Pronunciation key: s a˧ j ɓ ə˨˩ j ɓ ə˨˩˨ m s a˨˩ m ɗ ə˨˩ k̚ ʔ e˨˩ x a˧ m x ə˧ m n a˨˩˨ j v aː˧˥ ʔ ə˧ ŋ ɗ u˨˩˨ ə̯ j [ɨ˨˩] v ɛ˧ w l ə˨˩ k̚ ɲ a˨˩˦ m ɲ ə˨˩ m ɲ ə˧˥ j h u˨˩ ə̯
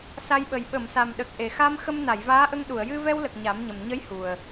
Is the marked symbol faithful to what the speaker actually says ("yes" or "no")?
no